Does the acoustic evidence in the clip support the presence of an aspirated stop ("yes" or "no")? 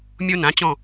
no